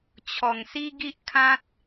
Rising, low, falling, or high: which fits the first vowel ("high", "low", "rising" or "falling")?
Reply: low